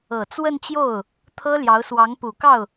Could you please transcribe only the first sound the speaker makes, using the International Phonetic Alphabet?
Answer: ɤ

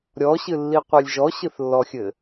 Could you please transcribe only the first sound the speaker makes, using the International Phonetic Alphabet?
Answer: ɾʲ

